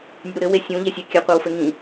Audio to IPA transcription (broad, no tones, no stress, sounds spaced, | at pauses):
nʲ ɨ ɾ u ɾ ɘ w e sʲ ũ ʎ e sʲ ɛ kʲ ɘ qʷ a w f ɘ ŋ ĩ